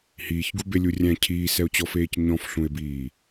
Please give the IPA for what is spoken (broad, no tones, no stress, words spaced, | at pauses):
hiːçɡubelʲu rʲæ̃ cʰiːsɛo̯t͡ɕɔfeːc ɲɔ̃fɬũe̯biː